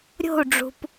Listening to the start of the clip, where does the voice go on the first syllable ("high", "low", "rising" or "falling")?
falling